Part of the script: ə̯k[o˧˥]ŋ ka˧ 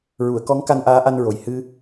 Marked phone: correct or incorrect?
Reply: incorrect